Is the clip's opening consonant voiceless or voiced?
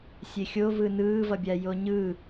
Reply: voiceless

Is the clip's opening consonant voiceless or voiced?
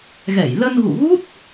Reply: voiced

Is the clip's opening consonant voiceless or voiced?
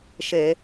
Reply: voiceless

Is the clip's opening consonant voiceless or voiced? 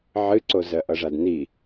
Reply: voiced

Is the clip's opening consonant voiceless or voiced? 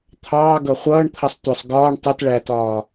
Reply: voiceless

